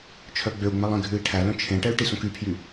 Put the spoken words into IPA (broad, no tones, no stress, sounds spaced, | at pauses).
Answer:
t͡ʃʰ œ ɡ͡b ø u̯ ŋ͡m æ lˠ ẽ ɡʱ ʉ i̯ ʈʰ æ l œ̃ t͡ʃʰ ẽ ʈ ɛ y̯ ʈ i s õ k y pʰ j y